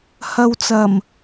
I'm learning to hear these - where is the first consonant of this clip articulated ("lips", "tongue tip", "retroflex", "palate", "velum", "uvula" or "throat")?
throat